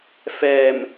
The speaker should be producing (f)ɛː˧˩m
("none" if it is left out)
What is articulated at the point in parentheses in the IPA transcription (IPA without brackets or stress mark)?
f